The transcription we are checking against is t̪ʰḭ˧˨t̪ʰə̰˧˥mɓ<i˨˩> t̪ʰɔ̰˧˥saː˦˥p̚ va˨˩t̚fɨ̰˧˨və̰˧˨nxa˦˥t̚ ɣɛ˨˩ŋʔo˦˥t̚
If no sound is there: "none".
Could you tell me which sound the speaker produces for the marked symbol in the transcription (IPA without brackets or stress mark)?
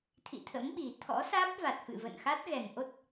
i˨˩